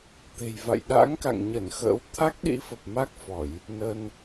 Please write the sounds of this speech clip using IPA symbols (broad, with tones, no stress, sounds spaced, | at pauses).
t̪ e̤˨˩ j v a̰˧˨ j ɗ a̰˧˥ ŋ k a̰˧˨ ŋ ɲ ə˧˩ n x ə̰ː˧˥ w t̪ʰ a˦˥ k̚ ɗ ḭ˧˥ f ə˨˩ p̚ m a˦˥ k̚ f ɔ˧˩˨ j | n ə˧ n